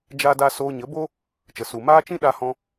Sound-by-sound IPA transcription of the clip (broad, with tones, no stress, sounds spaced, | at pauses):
d͡ʒ a˦ d a˦ s oː˧ ɲ ə˨˦ b o˦ | t͡ʃ ə˨ s u˨ m aː˦ t͡ʃ ĩ˦ ɗ a˧ h ɔ̃˧